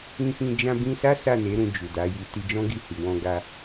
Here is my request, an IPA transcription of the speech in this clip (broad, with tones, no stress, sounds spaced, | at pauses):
ĩ˧ f ĩ˧ d͡ʒ ã˧ b ĩ˧ s a˦ s a˦˨ n e˨˦ ɾ ũ˧ d͡ʒ u˨ d a˨˦ j i˧ t i˧ d͡ʒ ɔ̃˦ ɡ i˧ h i˨ w ɔ̃˧ ɡ a˧